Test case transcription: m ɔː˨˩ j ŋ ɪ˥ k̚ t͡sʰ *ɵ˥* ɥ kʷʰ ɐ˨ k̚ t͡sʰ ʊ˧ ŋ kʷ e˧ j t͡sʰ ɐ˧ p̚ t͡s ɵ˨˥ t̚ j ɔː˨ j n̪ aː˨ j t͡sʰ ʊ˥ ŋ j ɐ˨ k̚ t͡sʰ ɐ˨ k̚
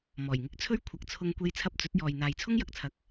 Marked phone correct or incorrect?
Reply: correct